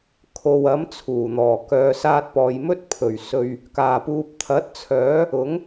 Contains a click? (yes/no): no